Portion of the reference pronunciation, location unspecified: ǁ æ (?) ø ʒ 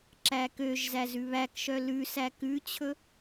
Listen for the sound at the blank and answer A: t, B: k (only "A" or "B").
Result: B